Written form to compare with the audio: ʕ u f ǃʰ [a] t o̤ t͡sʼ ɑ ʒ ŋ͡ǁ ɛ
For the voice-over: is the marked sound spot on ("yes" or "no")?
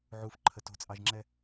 no